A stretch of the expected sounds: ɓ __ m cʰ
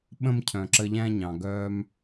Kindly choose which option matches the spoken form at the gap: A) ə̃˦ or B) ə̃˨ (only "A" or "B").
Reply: A